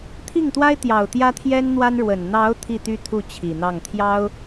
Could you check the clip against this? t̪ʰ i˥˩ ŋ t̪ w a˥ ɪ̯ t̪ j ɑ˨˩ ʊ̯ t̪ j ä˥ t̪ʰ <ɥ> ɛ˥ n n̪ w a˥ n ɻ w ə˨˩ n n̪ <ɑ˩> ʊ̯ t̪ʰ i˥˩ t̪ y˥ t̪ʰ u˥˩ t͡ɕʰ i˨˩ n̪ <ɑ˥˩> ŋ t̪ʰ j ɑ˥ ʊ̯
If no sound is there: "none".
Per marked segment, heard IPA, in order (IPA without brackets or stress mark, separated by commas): j, ɑ˧˥, ɑ˥˩